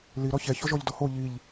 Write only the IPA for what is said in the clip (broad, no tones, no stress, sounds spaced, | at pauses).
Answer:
l i ɾ ɔ ç ɛ ç ɔ ʒ ɔ ʎ d ɔ h o ʎ i ʎ